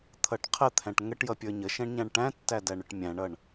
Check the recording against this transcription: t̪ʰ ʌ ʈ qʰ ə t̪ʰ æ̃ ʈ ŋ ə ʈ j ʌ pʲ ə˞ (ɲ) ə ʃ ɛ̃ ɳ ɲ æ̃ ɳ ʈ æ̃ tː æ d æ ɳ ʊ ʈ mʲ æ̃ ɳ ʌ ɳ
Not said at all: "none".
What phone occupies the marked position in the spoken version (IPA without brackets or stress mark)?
ɲ